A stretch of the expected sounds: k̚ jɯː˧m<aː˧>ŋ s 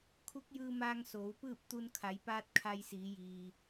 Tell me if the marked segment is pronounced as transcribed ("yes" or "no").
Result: yes